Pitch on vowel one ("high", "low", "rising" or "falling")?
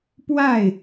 falling